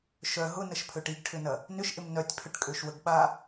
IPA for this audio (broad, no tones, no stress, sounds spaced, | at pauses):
ʃ œ ɦ ʊ n ə ʃ pʰ ø ʈ i ɡ ʈʰ ʏ n ɐ | n ʏ ʃ ʔ ɪ m n œ tʲ pʰ ʏ ʈ kʼ ø ʃ w ə ɡ ɓ a